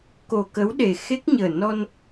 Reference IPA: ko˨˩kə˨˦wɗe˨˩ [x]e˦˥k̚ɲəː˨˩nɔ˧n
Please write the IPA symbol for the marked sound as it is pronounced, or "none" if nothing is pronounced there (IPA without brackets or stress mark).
x